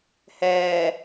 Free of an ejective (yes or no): yes